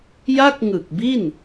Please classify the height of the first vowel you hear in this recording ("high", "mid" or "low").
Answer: low